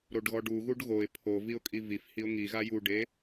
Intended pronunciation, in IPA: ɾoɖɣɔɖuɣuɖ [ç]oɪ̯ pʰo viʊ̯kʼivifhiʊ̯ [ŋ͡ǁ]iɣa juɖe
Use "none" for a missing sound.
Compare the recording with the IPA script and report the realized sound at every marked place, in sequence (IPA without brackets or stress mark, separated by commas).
ɣ, ŋ